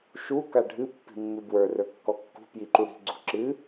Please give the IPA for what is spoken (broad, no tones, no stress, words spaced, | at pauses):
ʃu kaɖʱɨ pːi̤mːɨbwə˞ rə˞kːɔkːṳ pjiǃuɽi̤ ɡ͡ǀṳǁɨ